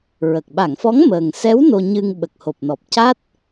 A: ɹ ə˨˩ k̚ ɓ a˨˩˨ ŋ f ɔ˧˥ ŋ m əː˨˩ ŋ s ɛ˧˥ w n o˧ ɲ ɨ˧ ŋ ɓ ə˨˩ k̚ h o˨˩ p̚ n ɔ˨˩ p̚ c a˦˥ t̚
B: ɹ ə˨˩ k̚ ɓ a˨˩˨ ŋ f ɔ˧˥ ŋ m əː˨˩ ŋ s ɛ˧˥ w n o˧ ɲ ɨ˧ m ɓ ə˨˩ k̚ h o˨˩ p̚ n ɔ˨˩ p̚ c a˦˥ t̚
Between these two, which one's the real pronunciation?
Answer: A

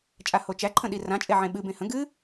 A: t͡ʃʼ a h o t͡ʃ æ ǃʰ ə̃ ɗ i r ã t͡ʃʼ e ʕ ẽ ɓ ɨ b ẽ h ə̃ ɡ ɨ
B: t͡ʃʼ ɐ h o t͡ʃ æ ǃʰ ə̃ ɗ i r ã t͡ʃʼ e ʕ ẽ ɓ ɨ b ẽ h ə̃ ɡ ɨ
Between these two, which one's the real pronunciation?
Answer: A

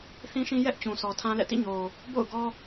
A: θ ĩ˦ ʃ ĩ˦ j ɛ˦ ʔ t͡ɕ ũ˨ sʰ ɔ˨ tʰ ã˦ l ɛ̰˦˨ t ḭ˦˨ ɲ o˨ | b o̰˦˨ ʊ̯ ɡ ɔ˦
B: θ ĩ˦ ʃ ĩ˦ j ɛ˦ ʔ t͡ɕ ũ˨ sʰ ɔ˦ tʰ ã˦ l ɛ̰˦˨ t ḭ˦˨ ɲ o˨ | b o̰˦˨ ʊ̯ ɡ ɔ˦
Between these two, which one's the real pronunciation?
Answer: A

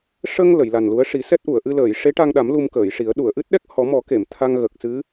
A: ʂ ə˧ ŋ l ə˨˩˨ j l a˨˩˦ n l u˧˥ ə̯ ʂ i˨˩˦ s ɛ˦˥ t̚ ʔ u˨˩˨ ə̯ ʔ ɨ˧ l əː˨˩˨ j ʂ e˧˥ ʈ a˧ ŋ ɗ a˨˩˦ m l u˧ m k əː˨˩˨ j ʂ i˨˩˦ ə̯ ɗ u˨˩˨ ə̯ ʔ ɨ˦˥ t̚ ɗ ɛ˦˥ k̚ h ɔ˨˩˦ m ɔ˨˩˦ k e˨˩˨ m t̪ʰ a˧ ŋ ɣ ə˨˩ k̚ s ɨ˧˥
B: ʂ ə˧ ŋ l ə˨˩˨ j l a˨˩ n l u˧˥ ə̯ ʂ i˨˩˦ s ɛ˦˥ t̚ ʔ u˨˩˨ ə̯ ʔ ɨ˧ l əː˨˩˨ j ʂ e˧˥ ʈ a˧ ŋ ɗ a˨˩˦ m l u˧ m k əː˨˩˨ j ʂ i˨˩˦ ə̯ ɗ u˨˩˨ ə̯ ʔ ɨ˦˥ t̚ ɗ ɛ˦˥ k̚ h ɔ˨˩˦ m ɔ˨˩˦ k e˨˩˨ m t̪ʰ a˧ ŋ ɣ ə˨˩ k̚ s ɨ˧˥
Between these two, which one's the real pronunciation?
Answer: B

